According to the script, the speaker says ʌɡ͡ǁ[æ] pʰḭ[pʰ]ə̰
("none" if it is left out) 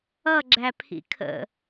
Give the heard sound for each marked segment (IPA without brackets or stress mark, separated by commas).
æ, kʰ